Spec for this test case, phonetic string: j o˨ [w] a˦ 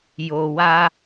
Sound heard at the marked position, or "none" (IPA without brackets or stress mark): w